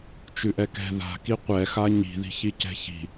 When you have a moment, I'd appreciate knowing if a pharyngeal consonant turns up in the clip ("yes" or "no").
no